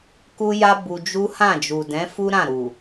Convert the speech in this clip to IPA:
k u˦ j a˦ b u˧ d͡ʒ u˦ h ã˦˨ d͡ʒ u˨ d ɛ̃˨˦ f u˦ ɾ ã˦˨ ɾ u˨

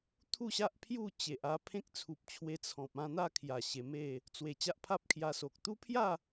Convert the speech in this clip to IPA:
t̪ʰ u˥˧ ɕ a˦ ʔ pʰ j u˥˧ t͡ɕ e˨ ʔ a˧ pʰ ẽ˦ k̚ t͡sʰ u˨ p̚ t͡ɕʰ w e˧ t͡sʰ ɔ̃˨ p̚ ã˥˧ n̪ a˥˧ kʰ j a˨˩ ɕ e˧ m e˥˧ | t͡s w e˨˩ t͡ɕ a˦ ʔ pʰ a˦ p̚ kʰ j a˧ s o˨ k̚ t̪ u˦ pʰ j a˥˧

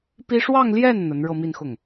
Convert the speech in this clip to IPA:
p i˥ ʂ w ɑ˥˧ ŋ l j ɛ˥˩ n n̪ ə˧˥ n ɻ ɤ˥˧ m i˥˧ n x ʊ˥˩ ŋ

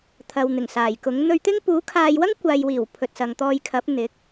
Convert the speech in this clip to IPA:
t̪ʰ ɐ˨ w n̪ ɪ˨˩ ŋ s aː˨˩ j k ʊ˨˥ ŋ n̪ ɵ˧ ɥ t̪ ɪ˥ ŋ p uː˨˥ kʰ aː˧ j w ɐ˥ ŋ kʷ aː˨ j w iː˨˩ w pʰ ɵ˨ t̚ s ɐ˨ ŋ t̪ ɔː˧ j kʰ ɐ˨˥ p̚ n̪ ɪ˨˥ k̚

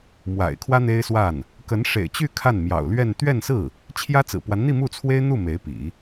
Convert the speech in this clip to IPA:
m w a̰˨˩ ɪ̯ kʰ w ä˥ n̪ e˥ ɪ̯ s w a˥˩ n | k ə˧˥ n ʂ ḛ˨˩ ɪ̯ t͡ɕ y˥˧ kʰ a˥˩ n m j ɑ̰˨˩ ʊ̯ l ɥ ɛ˥˧ n t̪ ɥ ɛ˥˧ n s ɹ̩˥˩ | t͡ɕʰ j ä˥ t͡s ɹ̩˨˩ p w a˧˥ n n̪ i˥˧ m u˥˩ t͡sʰ w e˥ ɪ̯ n̪ u˥˩ m e˧˥ ɪ̯ p ḭ˨˩˦

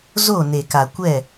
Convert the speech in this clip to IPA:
z o˦˨ n e˨ k a˨ kʷ ɛ˦˨

